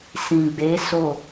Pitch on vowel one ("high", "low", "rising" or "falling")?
low